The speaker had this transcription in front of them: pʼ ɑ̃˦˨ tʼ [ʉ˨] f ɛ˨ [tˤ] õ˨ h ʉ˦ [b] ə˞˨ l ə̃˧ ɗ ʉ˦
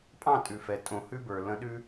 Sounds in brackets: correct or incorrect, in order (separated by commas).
correct, incorrect, correct